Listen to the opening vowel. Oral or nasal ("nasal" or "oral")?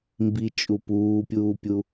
oral